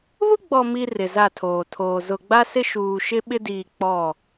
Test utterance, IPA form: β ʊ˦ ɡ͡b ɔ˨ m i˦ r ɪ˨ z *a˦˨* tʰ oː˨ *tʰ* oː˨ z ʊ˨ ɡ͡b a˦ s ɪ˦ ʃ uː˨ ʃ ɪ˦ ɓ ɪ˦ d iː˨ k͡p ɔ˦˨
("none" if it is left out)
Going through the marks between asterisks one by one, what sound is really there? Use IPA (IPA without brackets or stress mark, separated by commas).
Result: a˦˨, tʰ